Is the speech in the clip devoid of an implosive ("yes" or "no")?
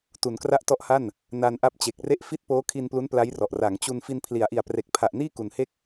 yes